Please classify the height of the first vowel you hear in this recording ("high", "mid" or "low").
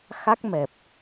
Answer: low